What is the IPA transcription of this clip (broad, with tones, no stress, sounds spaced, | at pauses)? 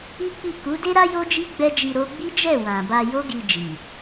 i˦ k͡p i˦˨ k u˨˦ d e˦ ɾ a˦ j o˦ d͡ʒ i˦ ɡ͡b ɛ˦ d͡ʒ i˧ ɾ o˦ ɡ͡b i˦ d͡ʒ ɛ˦˨ w ã˨ b a˧ j o˦ ɡ i˧ d͡ʒ i˨